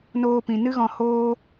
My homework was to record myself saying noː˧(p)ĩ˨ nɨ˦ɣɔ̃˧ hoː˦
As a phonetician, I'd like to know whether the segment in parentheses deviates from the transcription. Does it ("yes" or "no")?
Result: no